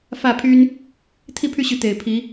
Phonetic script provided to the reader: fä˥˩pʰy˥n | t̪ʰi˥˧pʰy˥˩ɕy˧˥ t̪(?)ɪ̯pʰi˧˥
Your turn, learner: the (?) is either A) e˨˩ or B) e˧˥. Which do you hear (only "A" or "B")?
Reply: A